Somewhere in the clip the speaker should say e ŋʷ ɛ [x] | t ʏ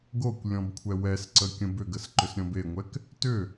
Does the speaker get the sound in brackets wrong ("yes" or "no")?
yes